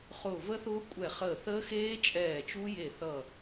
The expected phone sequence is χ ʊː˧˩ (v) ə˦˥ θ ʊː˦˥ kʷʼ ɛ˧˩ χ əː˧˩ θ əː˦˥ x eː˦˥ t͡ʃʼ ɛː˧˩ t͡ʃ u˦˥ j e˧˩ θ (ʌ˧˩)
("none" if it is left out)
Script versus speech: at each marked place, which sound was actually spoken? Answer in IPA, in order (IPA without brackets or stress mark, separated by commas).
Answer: v, ʌ˧˩